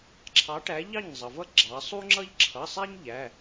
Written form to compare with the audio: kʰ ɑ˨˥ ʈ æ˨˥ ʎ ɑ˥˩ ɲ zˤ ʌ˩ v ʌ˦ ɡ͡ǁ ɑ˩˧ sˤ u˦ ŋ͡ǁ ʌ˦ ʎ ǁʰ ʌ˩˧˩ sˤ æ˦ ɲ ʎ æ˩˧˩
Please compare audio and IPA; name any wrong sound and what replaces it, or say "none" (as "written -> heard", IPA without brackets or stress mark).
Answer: kʰ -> ǁʰ